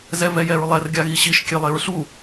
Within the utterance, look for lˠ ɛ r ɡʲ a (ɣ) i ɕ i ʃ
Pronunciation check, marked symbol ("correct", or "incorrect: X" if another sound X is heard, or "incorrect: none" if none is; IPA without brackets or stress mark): correct